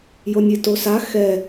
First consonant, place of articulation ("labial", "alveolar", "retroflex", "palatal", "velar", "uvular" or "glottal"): palatal